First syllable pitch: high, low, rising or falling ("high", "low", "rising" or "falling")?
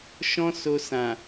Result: high